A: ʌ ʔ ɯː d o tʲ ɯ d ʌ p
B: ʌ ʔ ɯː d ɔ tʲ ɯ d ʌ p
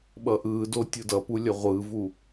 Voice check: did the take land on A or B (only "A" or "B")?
A